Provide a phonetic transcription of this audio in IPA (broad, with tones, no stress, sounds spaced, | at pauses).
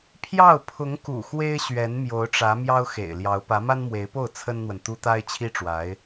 pʰ j ɑ˥˩ ʊ̯ pʰ ʊ˧˥ ŋ k ṵ˨˩ x w e˥ ɪ̯ ɕ ɥ ɛ˧˥ n m j o˧˥ ʊ̯ ʈ͡ʂ ä˧˥ m j ɑ˥ ʊ̯ x ḛ˨˩ ɪ̯ l j ɑ˧˥ ʊ̯ p ä˧˥ m a˥ n m w e˧˥ ɪ̯ p o˥˩ ʊ̯ t͡sʰ ə˥ n n̪ w ə˨ n t̪ u˥ t̪ a˥ ɪ̯ t͡ɕʰ i˥ ʈ͡ʂ w a˧˥ ɪ̯